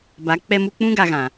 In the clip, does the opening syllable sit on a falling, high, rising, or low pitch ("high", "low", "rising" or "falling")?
rising